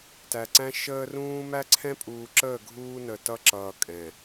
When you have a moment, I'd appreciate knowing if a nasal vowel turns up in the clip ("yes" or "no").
yes